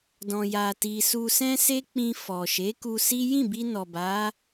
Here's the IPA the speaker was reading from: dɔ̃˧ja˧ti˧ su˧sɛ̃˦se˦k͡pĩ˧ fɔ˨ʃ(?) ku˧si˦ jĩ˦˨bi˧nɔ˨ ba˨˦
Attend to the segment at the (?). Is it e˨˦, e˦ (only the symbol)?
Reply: e˨˦